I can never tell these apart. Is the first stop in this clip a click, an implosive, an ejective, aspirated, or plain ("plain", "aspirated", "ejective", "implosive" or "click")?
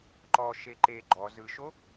click